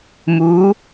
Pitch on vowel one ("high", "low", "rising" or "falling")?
rising